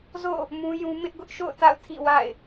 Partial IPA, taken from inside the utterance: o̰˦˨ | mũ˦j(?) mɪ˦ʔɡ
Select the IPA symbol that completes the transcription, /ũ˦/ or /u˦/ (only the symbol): ũ˦